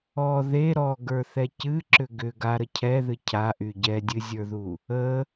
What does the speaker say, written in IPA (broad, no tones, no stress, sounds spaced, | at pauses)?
ɔ ð e ɾ ɔ ɡ ə˞ θ ɛ c ɨ ǁ ʏ ɡ ʏ ɡ a ɾ ə cʰ ɛ ð ɨ cʰ a ʔ y ɟ ɛ dʲ ɨ zʲ ə˞ ð u | ə